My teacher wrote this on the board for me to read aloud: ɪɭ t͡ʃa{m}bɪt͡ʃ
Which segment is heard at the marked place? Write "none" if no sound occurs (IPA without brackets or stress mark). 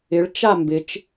m